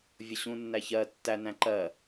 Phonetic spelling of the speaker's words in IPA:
vʲ ʊ ɕ ũ nː æ ç ɜ tː æ n æ̃ ǃ ɜ

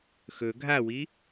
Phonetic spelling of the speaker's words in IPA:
x ɵ ɡʱ a w i

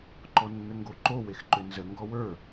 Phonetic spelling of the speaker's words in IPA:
ǃ ɔ nː ə ŋ ɡ o ǃ o w e x ǃ ʏ n z ə ŋ ɡ ɔ w ə˞

